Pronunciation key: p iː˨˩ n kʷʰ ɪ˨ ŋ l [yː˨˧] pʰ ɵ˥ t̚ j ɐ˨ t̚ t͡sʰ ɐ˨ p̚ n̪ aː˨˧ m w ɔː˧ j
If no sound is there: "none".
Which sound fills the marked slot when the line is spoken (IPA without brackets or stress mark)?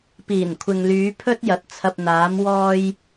yː˨˧